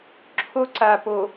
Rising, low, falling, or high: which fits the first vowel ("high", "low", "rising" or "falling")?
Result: high